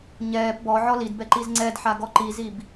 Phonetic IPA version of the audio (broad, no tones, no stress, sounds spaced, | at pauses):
ɲ ɛː p b ɔ ʕ ɔ l i d b ɛ ǃ i z ŋ͡ǀ ɛ d ħ a ɡ ɔ ǃ i z i b